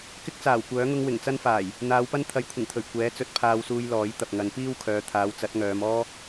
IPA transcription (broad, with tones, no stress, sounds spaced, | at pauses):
k ɪ˥ k̚ t͡s aː˨˩ w kʷ œː˨˥ ŋ ʊ˥ ŋ w ɪ˨˩ ŋ t͡s ɐ˥ n f aː˨˩ j | n̪ aː˨˧ w p ɐ˥ n t̪ʰ ɐ˨˥ j kʷʰ ɪ˨˩ ŋ t̪ʰ ɵ˨˩ ɥ kʷ ɛː˨˥ t͡s ɵ˨˥ t̚ pʰ aː˧ w s uː˧ j l ɔː˨˥ j t̪ ɐ˨ p̚ ŋ ɐ˨˧ n p iː˥ w kʰ œː˨˧ t̪ʰ aː˨˧ w t͡s ɐ˨˥ t̚ ŋ œː˨˧ m ɔː˥